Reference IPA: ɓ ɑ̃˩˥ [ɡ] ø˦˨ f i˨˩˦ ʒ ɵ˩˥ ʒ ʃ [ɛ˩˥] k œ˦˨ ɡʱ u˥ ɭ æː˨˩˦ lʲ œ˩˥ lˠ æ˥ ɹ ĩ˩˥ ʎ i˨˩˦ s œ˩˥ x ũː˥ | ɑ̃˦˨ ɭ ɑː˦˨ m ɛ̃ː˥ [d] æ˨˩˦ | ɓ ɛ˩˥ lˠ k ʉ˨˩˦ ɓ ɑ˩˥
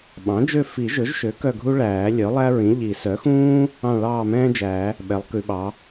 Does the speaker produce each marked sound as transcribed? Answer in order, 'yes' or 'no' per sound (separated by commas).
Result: no, no, no